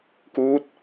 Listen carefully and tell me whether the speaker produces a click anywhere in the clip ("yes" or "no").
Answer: no